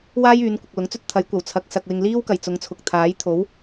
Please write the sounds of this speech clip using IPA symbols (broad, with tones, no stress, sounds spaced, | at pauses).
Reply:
w aː˥ j yː˨˧ n kʷ ɐ˨ k̚ l ʊ˨˥ ŋ t͡s ɵ˥ t̚ t̪ʰ ɐ˨˥ j kʷ ɐ˨˩ w t͡sʰ ɐ˨ k̚ s ɐ˨ k̚ w ɪ˨ ŋ l iː˥ w k ɐ˨˩ j t͡s ʊ˨˧ ŋ t͡sʰ ʊ˨ k̚ t̪ʰ aː˨˥ j t̪ʰ o˨˥ w